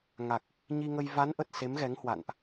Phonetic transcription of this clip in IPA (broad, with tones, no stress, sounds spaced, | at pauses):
ŋ a˨˩ k̚ | ɲ i˧ ŋ ə˧ j v a˨˦ n ʔ ə˨˩ t̚ s e˨˦ m ɣ ɛ˨˦ ŋ h w a̰˧˨ n ʔ